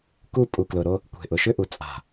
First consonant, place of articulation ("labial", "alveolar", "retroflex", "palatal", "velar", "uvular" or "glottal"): velar